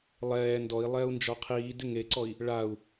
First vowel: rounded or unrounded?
unrounded